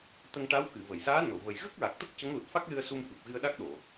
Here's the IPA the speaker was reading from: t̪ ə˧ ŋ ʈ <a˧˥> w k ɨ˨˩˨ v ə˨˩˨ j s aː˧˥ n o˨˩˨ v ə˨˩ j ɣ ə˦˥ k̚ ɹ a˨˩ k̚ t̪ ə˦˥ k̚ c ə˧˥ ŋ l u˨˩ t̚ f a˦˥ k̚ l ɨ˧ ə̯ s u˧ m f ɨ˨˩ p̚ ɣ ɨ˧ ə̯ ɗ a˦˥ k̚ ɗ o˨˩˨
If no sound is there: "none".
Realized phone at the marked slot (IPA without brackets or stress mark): a˧˥